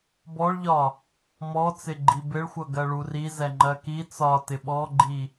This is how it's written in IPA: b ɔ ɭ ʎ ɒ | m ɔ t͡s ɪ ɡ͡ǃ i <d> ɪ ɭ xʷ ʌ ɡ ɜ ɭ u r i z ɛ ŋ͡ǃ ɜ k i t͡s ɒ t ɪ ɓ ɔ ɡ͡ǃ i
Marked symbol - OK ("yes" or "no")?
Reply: no